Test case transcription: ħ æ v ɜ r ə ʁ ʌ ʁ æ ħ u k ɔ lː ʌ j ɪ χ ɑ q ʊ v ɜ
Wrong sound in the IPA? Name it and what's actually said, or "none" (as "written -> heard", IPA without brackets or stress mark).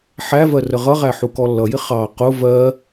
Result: none